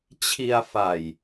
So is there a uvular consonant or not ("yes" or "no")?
no